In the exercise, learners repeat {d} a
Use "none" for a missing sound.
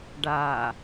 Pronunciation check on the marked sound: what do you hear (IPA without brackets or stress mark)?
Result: ɖ